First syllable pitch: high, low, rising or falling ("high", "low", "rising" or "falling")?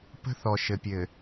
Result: high